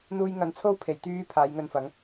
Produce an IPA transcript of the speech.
n̪ uː˧ j ŋ ɐ˨˧ n t͡sʰ o˥ w pʰ e˨˩ j t̪ yː˧ pʰ aː˨˥ j ŋ ɵ˧ n f ɐ˨˥ ŋ

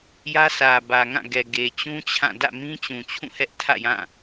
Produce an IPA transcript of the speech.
j ä˦ s ä˨ b ä˨ ŋ ã˦˨ ɡ ɛ˨ ɡ e˨ t͡ɕ ũ˦ t͡ɕʰ ã˦˨ d ä̰˦˨ m ĩ˦ t͡ɕ ũ˨ t͡ɕʰ ũ˦˨ h ɛ˦ ʔ tʰ ä̰˦˨ j ã˦˨

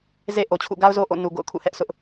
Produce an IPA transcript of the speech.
z e˦ ʔ o˨ t͡ɕʰ ṵ˦˨ ɡ a˦ ʊ̯ z o˦ ʔ o̰˦˨ n u˨ ɡ o̰˦˨ ʊ̯ kʰ ṵ˦˨ h ɛ˦ ʔ sʰ ʊ˦ ʔ

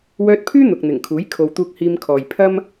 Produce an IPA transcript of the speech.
w œː˧ t̚ pʰ yː˥ n̪ ʊ˨ k̚ n̪ ɪ˨˩ ŋ kʰ uː˨˥ j kʰ o˨ w t̪ uː˧ k̚ h iː˧ m kʰ ɔː˨ j pʰ ɐ˥ m

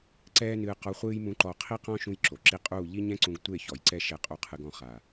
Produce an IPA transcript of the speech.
ǀ ɛː˦ n ɨː˧ q ɔ˧ χʷ ɨː˦ j m ũ˦ ǃ ɔ˦˨ qʰ i˦ q ɔ̃˦ ʃ ũ˦ j ǁ o˨ ǁ i˦ qʼ uː˦˨ ʎ i˦ ɲ ɛ̃˦ ǀ ũ˧ ɡ tʷ e˦˨ ç ɔ˨ j ǀ ɛ˦ ʃ ɛ˧ qʼ u˧ qʰ ɨ˧ ɡ ɔ̃˧ χ a˨

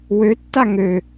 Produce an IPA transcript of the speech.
w ø tː a ŋ ø

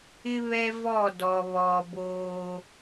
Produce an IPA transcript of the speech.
ɪ˦ β ɛ˦ v ɔ˦˨ d ɔ˨ β ɔ˨ b oː˦

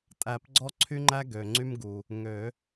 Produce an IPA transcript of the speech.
tʼ æ˨˩˦ p ɡ͡ǀ ɔ˦ ǀʰ y˦ ŋ͡ǃ æ˦ ɡ ø˩ ŋ͡ǀ y˦ m ɡ u˩ | ŋ ø˨˩˦

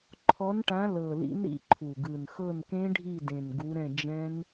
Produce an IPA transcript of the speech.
ǃʰ ɔ˨˦ n ʈ ã˨˦ l ɤ˨˩ l ḭ˨˦ n ɾ ḭ˨˦ ǃʰ u˨˩ ɡ ɯ˨˩ n x ɤ˦˨ n k ẽ˦˥ ɖʱ i˦˨ d ẽ˨˩ n ɡ u˨˦ ɾ ɛ̃˦˨ d͡ʒ ɛ̃˦˥ n

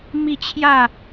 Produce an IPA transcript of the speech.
m i˥˧ t͡ɕʰ j a˥˧

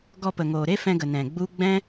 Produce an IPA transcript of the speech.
ɡ ɔ˧ p ə˨ ŋ oː˨ ɾ e˦ f ɛ̃˧ ɡ ə˨ n ɛ̃˨ ɡ͡b u˦ ɡ͡b ɛ̃˦

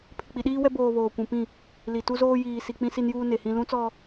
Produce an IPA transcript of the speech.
pʰ ɪ˨ k͡p i˨ ɗ iː˦ w ɛ˦ b oː˨ β oː˨ kʷ ũ˨ p ĩ˦˨ | l i˨ t u˦ z oː˦ j iː˨ s i˨ k͡p ĩ˦ s i˦ n j uː˦ n e˨ h ĩ˦ l ũ˦ t͡s ɔ˦

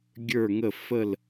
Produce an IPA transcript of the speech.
ɡʲ ə˞˥˧ ŋ ə˥˧ f ə˥˧ l

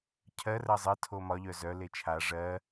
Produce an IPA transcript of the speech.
cʰ ɜ r ɜ zˤ ɜ tʰ o m ɒ ʎ œ z œ l e t͡ʃʰ a ʐ ɜ

